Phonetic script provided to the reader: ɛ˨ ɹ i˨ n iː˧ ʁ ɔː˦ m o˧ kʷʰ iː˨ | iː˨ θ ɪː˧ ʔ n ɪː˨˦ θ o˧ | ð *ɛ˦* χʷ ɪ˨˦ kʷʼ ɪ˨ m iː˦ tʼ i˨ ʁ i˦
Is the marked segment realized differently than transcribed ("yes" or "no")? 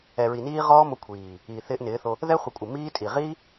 no